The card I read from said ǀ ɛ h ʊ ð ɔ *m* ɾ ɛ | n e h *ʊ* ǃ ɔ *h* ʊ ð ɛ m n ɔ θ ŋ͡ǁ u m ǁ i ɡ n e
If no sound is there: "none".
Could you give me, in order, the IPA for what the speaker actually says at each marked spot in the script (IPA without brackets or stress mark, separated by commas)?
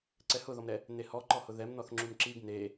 m, ɔ, h